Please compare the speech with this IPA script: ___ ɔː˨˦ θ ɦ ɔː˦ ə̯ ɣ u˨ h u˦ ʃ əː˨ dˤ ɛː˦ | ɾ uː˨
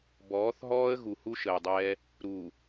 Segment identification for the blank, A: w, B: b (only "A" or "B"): B